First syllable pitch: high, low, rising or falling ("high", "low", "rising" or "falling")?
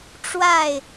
falling